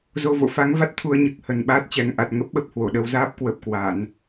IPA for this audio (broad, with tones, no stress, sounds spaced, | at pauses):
z o˧ v o̰˧˨ f a˨˦ ŋ v a˦˥ t̚ t̪ʰ u˧ ə̯ ɲ ɨ˨˩ k̚ h ə˨˩ n ɓ aː˦˥ t̚ t͡ɕ ɛ˨˩ ŋ ʔ a˨˩ t̚ ŋ ə˦˥ p̚ ɓ ə˦˥ p̚ h w o˧˩ ɗ ə˧ w z aː˦˥ p̚ k w ə˨˩ p̚ k w a˧˩˨ n